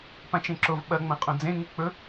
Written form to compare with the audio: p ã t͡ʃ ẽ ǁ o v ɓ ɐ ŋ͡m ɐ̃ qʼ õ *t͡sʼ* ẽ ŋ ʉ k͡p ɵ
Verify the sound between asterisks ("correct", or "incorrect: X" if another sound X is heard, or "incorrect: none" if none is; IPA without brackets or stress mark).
incorrect: d͡z